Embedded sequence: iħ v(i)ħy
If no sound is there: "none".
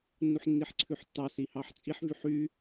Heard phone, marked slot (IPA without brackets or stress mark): y